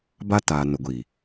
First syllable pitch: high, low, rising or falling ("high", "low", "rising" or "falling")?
high